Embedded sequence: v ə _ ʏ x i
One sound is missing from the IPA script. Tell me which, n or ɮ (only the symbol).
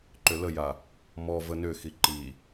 n